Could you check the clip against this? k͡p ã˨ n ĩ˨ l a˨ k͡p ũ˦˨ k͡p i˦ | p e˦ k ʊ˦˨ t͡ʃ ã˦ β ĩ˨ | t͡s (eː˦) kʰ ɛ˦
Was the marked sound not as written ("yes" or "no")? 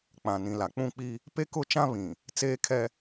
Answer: no